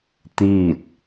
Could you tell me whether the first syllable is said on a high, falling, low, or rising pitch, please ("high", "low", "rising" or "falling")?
falling